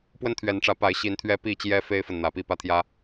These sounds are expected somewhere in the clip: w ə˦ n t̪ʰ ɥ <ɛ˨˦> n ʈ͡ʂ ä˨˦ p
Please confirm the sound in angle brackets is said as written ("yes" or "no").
yes